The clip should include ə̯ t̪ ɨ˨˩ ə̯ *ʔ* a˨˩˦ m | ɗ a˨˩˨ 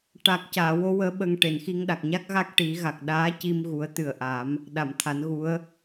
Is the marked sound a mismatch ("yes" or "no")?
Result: no